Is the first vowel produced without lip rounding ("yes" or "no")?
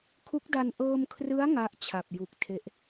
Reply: no